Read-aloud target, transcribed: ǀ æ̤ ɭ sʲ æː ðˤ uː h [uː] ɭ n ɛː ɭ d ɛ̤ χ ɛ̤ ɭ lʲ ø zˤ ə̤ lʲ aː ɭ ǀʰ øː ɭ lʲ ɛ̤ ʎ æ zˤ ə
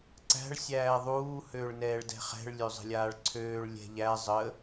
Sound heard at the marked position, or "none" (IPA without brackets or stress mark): øː